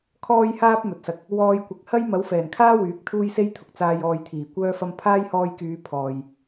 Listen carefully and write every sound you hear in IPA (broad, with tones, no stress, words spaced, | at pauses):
kʰɔː˧jhaː˧p̚ mɵ˨t̚sɐ˧k̚ | wɔː˧jkʷɪ˨k̚ hɐ˥j mɐ˨˥wfɛː˨˩nkʰaː˥ wyː˨˥k̚t̪ʰuː˥jse˥jt̪ʰʊ˨k̚ t͡saː˨j ɔː˨jt̪ʰiː˨˩ kʷœː˧fɐ˧m pʰaː˥jhɔː˧jkyː˨˧ pʰɔː˨j